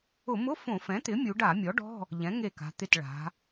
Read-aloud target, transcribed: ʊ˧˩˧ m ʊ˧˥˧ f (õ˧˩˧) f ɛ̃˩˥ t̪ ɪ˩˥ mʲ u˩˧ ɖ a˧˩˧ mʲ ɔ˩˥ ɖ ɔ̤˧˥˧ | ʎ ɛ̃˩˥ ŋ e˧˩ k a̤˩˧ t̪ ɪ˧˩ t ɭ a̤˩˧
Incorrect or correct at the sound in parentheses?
correct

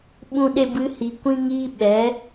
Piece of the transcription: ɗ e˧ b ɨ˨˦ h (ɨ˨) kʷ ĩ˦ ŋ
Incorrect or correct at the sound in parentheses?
incorrect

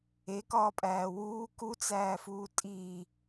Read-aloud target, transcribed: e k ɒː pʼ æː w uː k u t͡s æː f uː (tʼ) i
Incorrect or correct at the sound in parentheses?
correct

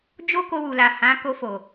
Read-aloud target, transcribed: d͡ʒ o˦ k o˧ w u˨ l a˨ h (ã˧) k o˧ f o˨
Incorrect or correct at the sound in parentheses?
incorrect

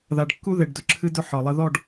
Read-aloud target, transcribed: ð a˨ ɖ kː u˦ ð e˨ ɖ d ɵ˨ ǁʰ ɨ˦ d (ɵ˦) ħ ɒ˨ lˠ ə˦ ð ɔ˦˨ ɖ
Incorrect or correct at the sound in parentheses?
correct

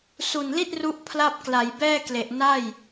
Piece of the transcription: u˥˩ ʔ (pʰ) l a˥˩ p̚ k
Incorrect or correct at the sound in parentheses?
correct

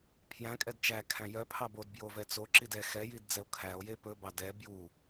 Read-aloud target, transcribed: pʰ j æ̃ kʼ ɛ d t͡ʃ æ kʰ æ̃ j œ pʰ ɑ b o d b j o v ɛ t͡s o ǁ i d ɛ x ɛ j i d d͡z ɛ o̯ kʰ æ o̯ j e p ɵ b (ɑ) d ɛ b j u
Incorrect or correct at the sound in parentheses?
correct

